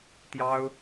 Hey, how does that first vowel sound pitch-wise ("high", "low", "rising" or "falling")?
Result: high